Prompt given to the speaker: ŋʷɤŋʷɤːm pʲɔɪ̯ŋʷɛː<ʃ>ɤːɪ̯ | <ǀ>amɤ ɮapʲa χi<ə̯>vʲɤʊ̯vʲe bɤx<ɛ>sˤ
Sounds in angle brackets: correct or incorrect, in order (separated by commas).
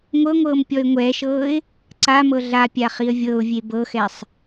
correct, correct, correct, correct